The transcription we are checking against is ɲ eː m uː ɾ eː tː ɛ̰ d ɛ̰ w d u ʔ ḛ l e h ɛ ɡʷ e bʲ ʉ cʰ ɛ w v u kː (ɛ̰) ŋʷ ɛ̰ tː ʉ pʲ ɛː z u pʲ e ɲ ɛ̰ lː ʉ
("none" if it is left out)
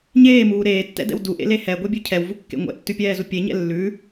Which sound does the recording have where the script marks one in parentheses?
ḛ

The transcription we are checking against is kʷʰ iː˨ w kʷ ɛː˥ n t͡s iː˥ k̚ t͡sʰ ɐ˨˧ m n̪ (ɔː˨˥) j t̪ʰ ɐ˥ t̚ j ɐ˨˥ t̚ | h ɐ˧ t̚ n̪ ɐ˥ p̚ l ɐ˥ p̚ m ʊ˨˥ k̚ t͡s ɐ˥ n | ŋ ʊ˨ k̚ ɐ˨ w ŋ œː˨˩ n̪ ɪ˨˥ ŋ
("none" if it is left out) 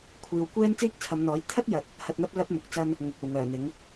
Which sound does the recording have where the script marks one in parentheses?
ɔː˨˥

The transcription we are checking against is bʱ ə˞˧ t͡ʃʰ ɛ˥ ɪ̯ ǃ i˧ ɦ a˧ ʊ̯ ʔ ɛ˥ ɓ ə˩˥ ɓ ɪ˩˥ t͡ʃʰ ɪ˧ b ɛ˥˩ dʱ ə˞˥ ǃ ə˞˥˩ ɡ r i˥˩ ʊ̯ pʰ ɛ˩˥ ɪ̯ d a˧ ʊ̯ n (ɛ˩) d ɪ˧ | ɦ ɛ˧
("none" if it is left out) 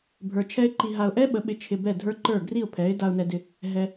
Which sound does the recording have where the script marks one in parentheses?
ɛ˧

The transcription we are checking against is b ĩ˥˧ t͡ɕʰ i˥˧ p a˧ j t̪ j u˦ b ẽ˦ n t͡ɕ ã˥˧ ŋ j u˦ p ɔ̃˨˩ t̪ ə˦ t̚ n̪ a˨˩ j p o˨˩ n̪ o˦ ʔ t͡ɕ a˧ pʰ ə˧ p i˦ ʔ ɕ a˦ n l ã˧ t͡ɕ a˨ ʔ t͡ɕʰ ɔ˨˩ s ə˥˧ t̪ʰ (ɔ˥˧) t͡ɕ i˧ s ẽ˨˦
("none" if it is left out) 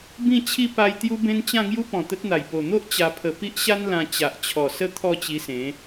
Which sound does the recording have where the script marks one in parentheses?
ɔ˥˧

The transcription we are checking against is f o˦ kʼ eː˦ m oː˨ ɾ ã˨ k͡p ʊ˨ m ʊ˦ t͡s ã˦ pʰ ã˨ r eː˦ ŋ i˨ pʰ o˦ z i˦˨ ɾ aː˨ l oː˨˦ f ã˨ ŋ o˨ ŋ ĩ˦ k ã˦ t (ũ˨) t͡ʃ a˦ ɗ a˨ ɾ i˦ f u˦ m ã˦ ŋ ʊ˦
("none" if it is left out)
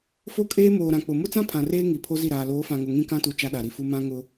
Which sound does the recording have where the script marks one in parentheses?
u˨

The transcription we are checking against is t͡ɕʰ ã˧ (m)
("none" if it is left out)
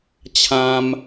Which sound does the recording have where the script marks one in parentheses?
m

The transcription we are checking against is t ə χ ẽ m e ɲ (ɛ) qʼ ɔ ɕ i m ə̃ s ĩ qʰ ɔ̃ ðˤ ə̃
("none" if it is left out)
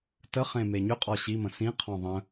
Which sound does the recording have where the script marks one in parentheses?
ʏ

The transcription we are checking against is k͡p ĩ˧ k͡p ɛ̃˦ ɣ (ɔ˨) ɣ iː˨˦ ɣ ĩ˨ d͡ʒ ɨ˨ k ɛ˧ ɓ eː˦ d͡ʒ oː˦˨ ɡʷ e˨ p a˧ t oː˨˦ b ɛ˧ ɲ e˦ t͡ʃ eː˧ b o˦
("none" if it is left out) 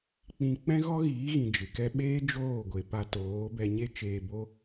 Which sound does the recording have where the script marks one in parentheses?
ɔ˦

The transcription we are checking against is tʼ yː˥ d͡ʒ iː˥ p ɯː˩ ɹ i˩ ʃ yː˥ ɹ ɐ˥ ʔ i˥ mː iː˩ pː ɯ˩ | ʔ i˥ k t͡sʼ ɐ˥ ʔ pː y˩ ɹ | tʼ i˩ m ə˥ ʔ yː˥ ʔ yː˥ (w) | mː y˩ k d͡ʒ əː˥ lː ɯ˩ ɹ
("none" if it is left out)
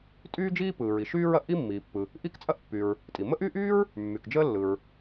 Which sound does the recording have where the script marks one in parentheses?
ɹ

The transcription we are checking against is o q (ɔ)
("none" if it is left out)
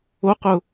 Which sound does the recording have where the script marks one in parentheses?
ʊ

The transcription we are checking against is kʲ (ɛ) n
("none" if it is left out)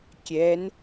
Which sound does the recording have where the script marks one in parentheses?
ɛ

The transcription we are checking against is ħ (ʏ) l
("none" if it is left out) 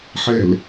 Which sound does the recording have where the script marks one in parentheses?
ɛ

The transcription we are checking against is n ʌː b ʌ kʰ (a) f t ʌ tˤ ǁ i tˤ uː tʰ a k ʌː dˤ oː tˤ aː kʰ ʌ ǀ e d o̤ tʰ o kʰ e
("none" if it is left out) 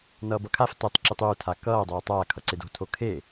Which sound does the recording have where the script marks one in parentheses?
a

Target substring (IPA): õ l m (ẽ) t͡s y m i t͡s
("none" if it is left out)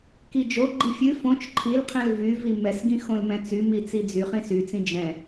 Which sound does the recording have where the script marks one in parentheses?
ɛ̃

